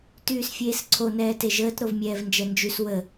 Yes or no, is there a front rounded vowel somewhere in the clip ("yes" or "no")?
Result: yes